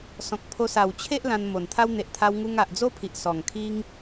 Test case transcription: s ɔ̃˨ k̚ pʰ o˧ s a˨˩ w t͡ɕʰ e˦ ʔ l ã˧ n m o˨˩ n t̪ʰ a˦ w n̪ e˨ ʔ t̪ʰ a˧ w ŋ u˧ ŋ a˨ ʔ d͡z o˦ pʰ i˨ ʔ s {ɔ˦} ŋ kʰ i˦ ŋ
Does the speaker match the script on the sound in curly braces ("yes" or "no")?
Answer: no